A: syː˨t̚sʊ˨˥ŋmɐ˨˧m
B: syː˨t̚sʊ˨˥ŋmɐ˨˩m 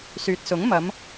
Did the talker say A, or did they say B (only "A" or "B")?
A